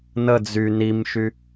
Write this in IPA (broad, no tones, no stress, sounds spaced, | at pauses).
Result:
n ə d͡z y n i m ʃ y